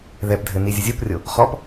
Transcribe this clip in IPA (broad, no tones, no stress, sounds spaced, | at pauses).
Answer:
ð ɛ p dʱ ɘ n i zʲ ə zʲ o p rʲ o | χ ɔ p